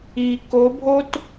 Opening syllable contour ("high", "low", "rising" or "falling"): low